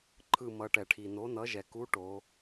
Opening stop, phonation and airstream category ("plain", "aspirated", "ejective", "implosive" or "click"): click